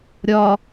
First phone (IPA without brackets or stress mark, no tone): ɾʲ